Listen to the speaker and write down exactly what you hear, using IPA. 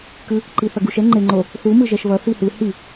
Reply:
kɯ | ǃiθʌɡuʃ ɛŋ͡ǃeŋ͡ǃo | θu mɯʒɛʃβʌ θihɯ hi

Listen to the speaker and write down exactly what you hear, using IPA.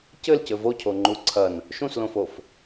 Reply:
cɘlcɘ vocʰoŋ͡ǃu ǀʰɐn | ʃũslõfof

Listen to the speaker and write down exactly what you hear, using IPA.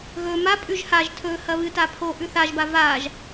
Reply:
ɣɵ mapʼʉʒ haʒ tʰɵ hɐβɨta pʰo ʔʉθaʒba vaʒ

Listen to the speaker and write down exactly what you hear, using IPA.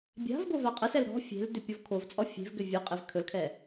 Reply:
bʲa̤vɡo vaqʼəsɛl ɾɔ̤ fʲe̤l dʏpʲɔvkʰovt͡sʼɔ fʲe̤vɡʏ vʲɵqʼev kʰɵlkʰɛ

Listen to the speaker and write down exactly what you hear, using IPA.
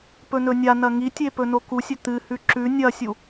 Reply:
pɵnɵnʲanɐ ŋitʲe pɵnokusʲɵ t̪ɨhʉ ǁʉ nʲɐsʲu

